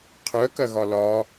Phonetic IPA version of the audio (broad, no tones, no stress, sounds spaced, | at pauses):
qʰ œ k ɐ ɣ ɒ l ɒ